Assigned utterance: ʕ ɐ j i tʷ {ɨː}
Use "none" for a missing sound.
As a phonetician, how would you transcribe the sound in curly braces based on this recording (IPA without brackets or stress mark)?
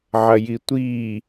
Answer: iː